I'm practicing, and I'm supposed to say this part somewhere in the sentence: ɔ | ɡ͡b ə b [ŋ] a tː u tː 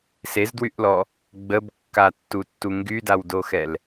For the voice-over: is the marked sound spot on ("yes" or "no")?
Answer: no